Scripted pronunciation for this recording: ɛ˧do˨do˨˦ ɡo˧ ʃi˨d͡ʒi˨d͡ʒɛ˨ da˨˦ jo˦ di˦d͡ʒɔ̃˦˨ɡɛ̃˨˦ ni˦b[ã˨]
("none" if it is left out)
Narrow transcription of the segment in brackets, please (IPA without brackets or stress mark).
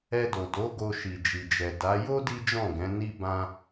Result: ã˦